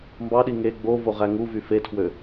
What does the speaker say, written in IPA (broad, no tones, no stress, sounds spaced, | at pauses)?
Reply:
m b ɑ ɗ i ŋ e ɡ͡b o v o ʁ æ ŋ u v y f e tʰ w ø